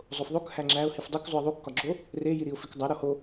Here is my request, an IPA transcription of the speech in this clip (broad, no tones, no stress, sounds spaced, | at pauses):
zˤ o f ðˤ o k h æ ŋ͡ǁ æ ʊ̯ h i f dˤ u k zˤ u ɪ̯ ðˤ u kː ɒ ɡ͡ǁ o | r e j i ɾ i ʊ̯ f i k dˤ æ ɾ o h o